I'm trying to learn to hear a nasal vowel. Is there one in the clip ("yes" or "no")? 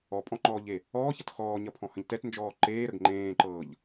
yes